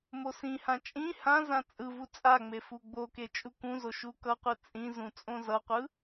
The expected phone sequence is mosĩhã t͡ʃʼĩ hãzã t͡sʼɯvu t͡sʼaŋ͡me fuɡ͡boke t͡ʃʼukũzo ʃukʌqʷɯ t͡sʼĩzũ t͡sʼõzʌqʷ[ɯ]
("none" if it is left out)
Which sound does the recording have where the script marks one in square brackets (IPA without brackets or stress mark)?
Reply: ɯ